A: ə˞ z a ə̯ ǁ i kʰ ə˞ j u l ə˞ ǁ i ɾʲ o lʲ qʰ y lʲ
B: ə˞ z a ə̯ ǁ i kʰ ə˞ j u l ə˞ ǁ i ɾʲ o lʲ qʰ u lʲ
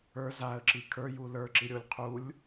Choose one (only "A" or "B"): B